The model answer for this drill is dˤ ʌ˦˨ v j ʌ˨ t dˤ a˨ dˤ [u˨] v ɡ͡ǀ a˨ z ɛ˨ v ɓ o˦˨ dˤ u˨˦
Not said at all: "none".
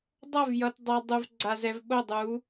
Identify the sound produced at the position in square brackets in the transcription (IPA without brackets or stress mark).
u˨